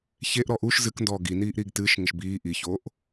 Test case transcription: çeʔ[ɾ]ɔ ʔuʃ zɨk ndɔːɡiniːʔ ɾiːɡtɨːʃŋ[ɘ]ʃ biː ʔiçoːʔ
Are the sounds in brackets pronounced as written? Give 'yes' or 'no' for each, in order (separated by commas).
yes, yes